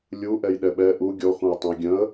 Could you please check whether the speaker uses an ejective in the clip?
no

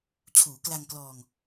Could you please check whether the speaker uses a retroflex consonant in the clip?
no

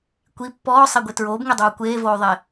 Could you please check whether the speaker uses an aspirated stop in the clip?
no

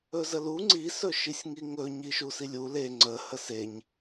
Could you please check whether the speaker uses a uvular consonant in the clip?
no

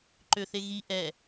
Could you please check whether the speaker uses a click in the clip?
yes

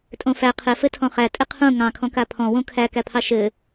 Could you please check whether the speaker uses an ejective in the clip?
yes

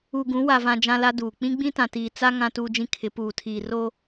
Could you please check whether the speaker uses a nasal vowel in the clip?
yes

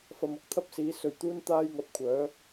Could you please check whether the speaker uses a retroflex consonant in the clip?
no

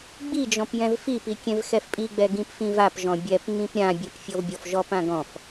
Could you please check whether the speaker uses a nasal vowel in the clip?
yes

